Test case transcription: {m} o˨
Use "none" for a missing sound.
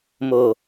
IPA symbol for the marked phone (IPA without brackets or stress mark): m